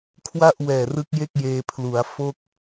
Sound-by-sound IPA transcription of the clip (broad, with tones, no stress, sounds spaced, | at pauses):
kʰ w a˥˩ ʔ w ɛː˨˩ r ɯ˦˥ k̚ j e˥˩ k̚ j eː˧ pʰ l u˩˦ a̯ f o˥˩ k̚